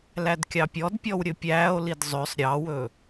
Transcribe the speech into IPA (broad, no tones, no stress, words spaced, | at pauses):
lædkʲɑpʲɔdpʲɔw ɾʲɵpʲæːo̯lid zˤøsˤ ɾʲɑwɵ